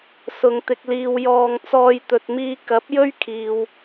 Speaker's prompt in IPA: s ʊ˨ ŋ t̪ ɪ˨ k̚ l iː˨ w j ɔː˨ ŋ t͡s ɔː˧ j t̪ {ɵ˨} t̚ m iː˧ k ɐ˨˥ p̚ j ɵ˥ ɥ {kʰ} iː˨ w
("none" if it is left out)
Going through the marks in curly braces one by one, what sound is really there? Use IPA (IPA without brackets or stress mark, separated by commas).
ɵ˨, kʰ